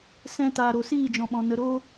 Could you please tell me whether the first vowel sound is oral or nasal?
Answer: nasal